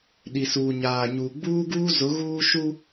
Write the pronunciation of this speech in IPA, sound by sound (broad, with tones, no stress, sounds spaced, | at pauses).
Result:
ɗ i˨ s uː˨ ɲ aː˨ ɲ uː˨ ɡ͡b uː˦ ɡ uː˦ z ʊ˨˦ ɣ uː˦ ʃ u˦